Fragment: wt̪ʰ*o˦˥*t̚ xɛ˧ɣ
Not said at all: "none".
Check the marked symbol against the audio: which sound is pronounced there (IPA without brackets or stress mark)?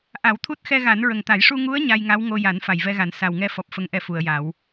u˦˥